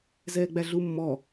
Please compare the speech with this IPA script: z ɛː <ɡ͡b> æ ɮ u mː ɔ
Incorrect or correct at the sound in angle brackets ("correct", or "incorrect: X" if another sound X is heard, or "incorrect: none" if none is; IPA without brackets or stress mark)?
correct